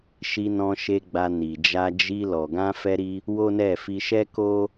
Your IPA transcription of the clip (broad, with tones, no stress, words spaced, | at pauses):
ʃi˧nɔ̃˧ʃe˧ɡ͡ba˧ ni˨d͡ʒa˧ d͡ʒi˧ lɔ˨ɡã˧fɛ˧ɾi˧ | wo˦ nɛ˦˨ fi˧ʃɛ˦ko˦